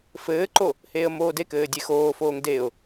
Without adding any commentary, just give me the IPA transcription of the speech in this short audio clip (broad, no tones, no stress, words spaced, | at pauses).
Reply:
fɘːǃo | heːə̯moːdekɘː dʲexoːfoːŋ deʊ̯